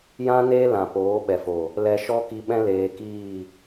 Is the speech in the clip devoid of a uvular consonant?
yes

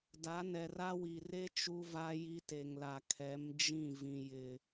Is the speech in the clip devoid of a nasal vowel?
no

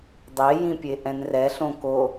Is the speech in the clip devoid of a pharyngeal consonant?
yes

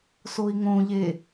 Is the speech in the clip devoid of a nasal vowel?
no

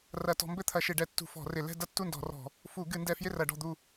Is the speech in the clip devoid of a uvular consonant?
yes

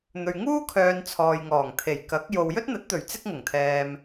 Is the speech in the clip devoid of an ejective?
yes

